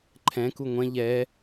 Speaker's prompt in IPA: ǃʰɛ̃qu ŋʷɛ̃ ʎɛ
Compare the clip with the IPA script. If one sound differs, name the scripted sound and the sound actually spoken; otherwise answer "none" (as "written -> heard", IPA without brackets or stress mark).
q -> k